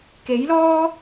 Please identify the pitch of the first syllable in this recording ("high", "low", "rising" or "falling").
rising